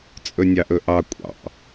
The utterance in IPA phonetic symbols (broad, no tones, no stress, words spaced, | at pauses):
t͡sʼɵnʲɑʔɵʔɑ kʷʼɑ̰